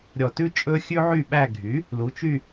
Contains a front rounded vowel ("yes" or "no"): yes